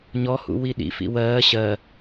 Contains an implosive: yes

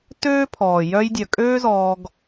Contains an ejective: yes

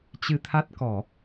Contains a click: no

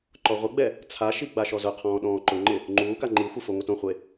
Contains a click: yes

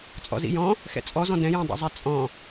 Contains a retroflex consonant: no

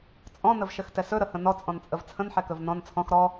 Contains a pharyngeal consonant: yes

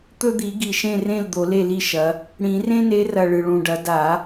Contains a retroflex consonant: yes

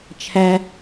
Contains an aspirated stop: yes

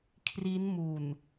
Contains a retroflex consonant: no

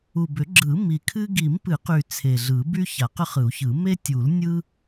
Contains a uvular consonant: yes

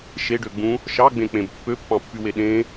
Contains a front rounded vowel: yes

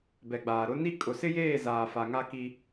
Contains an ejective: yes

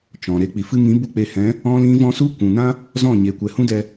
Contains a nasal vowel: yes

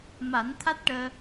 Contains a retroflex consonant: yes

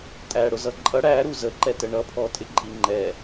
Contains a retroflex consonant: yes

